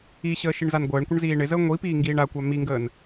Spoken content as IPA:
i ɕ əː ʃ i ɳ z a n ɡʷ əː ɳ kʷ ə ɳ z iː ɳ ɪ z əː ŋʷ i p iː ŋ ɡ iː ɳ a kʷ a m i ŋ ɡ əː n

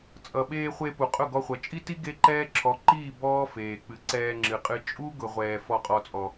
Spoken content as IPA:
t͡sʼ ʌ˨ ɓ eː˧ χʷ e˧ p u˨ qʼ ʊ˦˨ ɡ ɔ˧ χʷ ʌ˨ t͡ʃʼ i˦ t i˦ ɡ e˦ ǃ ɛː˦ ǁʰ ɔ˨˦ ǃ iː˦˨ b ɔː˦ f eː˨ k͡p ɨ˨ ǀ ɛː˧ ŋ͡ǁ ɨ˨ qʼ ɨ˧ t͡ʃʼ u˦ ɡ ʊ˨ ʁʷ ɛː˨ f ɔ˨ qʼ ɔ˨ t͡sʼ ɔ˨

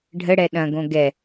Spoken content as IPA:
ɖʱ ə ɽ ɛ ɗ ɐ̃ ɡ õ ɡ ɛ

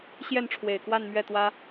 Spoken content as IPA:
ɕ j ɛ˥˩ n ʈ͡ʂʰ w e˨˩ ɪ̯ k w a˥˧ n m ɥ ɛ˥˩ t̪ w ä˥

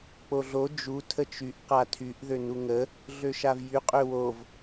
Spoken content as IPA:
k͡p o ɮ o d͡ʒ u tʰ ə t͡ʃ y ʔ q a tʰ y ʔ ð ø n u ŋ ə | ɮ ø ʃ a v j y qʼ ø w o v

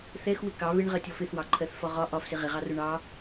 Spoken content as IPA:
θ ɛ x w ɪ k ɑ β ɪ ɳ ʁ ɜ tʲ ɔ f ɪ θ w ɑ ǃʰ ɜ θ f ɒ ʁ ɒ ʔ ɒ f s ɪ ʁ ɪ ʁ ɑ r ʊ ɳ ɑ

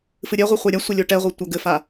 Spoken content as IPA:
f ɨ ɾʲ ɛ ʁʷ i χʷ ɛ ɾʲ a sʷ ɘ lʲ o ʈ ɛ ʁʷ e tʷ ɐ ɡ ɘ f a

